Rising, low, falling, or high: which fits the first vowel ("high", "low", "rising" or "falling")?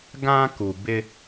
high